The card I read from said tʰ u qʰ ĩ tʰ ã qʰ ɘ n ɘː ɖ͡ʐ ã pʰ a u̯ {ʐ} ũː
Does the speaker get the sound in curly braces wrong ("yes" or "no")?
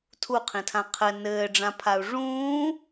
no